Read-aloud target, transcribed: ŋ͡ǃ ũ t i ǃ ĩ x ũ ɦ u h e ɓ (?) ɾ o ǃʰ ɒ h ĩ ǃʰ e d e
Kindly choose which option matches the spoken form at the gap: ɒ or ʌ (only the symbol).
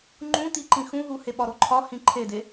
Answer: ɒ